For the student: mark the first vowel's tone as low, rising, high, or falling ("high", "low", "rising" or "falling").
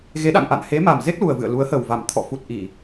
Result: rising